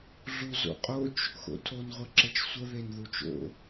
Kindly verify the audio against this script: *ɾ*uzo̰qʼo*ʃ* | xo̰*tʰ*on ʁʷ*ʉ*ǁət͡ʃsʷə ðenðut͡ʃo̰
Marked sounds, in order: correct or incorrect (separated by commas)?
incorrect, incorrect, correct, incorrect